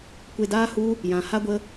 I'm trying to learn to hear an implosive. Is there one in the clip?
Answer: no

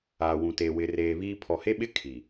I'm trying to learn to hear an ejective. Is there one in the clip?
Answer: no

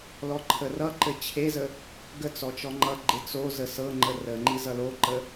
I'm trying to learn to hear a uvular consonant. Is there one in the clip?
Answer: no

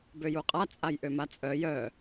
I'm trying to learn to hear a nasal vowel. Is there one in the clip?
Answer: no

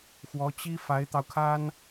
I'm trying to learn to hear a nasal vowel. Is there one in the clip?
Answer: no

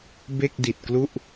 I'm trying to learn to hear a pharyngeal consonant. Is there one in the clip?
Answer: no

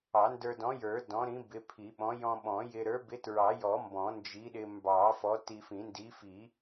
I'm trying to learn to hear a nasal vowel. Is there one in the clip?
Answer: yes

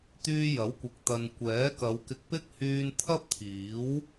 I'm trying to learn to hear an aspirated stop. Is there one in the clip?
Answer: yes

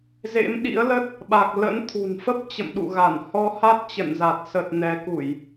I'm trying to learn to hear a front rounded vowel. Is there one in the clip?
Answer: no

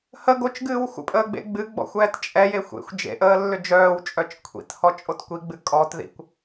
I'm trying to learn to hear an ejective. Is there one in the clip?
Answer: yes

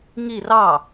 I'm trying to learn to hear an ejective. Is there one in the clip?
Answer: no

